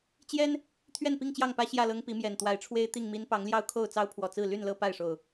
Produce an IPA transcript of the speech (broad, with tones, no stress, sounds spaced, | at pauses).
t͡ɕ j ɛ˦ n | t̪ʰ ɥ ɛ˥˨ n p i˥˨ ŋ t͡ɕ j ɑ˥˨ ŋ p ä˦ ɕ j ä˥˨ l ɤ˦ ŋ p i˨˦ m j ɛ˨˩ n t̪ w a˨˦ ɪ̯ ʈ͡ʂʰ w e˦ ɪ̯ t̪ i˥˨ ŋ m i˦ n p ɑ˨˦ ŋ l j ɑ˦ ʊ̯ kʰ o˥˨ ʊ̯ t͡s ɑ˦ ʊ̯ pʰ w ɔ˨˩ t͡s ɹ̩˥˨ l y˥˨ n l ɤ˦ p a˥˨ ɪ̯ ʂ o˨˩ ʊ̯